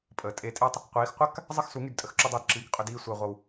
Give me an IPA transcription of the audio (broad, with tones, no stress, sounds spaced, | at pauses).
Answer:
pʼ əː˨ tʼ e˧ tʼ e˦ tˤ | qʷ iː˨˦ x qʷ a˦ k | zˤ ə˦ x s u˨˦ ŋ y˧ d tʼ ə˧ x ǁ u˧ dˤ uː˨ d ǁ iː˨ k qʼ ʏ˧ d iː˧ sʷ əː˨ ʁʷ ʌ˨ w